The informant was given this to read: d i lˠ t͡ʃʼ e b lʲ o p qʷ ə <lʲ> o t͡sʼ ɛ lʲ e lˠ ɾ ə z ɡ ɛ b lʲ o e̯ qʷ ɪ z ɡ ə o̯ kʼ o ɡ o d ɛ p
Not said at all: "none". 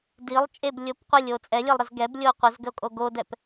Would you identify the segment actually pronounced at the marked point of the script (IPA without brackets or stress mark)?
lʲ